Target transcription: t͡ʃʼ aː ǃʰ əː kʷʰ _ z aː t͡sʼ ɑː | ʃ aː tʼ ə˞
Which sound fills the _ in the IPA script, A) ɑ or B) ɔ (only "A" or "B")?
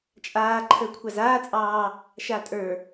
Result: A